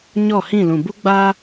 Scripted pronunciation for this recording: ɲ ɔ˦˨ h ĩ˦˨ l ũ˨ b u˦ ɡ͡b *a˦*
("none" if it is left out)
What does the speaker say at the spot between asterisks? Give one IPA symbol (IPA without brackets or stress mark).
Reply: a˦